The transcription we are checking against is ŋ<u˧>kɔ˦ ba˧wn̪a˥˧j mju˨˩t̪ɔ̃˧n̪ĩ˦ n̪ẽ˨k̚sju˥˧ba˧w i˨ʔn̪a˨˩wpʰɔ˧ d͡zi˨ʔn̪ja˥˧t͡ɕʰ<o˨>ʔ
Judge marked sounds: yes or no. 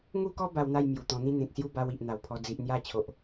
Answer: no, yes

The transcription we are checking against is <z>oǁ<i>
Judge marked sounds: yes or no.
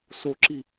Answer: no, yes

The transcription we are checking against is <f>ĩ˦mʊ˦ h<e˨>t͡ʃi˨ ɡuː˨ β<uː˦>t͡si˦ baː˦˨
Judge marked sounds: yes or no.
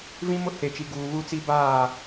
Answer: no, yes, no

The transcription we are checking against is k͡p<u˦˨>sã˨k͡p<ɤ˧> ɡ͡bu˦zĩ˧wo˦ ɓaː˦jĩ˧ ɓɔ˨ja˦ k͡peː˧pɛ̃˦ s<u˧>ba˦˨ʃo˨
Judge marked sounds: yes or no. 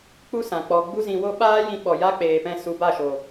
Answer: no, no, yes

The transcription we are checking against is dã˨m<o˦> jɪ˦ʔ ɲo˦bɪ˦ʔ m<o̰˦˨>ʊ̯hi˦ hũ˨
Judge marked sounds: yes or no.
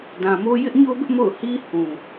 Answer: yes, yes

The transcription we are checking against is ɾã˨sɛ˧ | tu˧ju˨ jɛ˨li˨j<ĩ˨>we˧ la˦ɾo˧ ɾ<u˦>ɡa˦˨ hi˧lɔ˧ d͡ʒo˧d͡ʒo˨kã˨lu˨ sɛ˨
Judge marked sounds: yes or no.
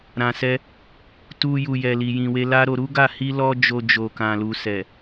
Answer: yes, yes

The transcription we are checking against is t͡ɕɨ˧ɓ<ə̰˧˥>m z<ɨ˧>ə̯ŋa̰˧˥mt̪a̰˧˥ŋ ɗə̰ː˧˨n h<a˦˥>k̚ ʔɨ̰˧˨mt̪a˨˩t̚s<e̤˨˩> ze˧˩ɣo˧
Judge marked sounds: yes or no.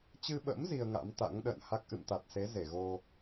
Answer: yes, no, yes, no

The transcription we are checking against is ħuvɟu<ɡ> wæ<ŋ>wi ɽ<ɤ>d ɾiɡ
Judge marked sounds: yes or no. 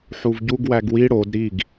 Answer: yes, no, no

